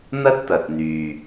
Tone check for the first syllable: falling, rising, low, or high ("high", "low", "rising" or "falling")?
high